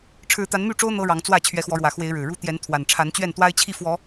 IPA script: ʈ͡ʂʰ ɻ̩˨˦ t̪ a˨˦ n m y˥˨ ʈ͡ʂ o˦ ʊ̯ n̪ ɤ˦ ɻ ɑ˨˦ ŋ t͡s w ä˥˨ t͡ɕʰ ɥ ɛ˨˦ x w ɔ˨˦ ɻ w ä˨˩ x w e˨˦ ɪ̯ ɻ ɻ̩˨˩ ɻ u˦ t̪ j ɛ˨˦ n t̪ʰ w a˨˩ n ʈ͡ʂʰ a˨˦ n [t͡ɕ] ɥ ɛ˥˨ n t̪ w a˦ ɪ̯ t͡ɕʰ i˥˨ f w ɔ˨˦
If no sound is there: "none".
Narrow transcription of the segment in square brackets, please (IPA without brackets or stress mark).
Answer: t͡ɕ